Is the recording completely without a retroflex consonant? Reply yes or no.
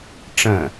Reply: no